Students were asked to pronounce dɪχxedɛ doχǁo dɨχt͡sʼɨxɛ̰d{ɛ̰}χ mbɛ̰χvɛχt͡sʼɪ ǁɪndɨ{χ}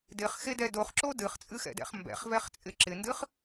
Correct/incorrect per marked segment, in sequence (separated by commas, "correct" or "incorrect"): correct, correct